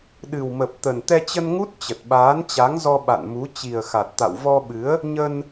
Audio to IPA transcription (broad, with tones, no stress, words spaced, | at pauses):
ɗɨ˨˩wmə˨˩p̚t̪ə˨˩n t̪ɛ˧t͡ɕə˧nŋu˦˥t̚ t͡ɕə˨˩t̚ɓaː˨˦nt͡ɕa˨˦ŋzɔ˧ ɓa̰˧˨n mu˨˦ t͡ɕi˨˩ə̯xa˨˩t̚t̪a̰˧˨w vɔ˧ɓɨ˨˦ə̯ | ɲə˧n